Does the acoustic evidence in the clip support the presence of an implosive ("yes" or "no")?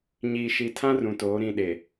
yes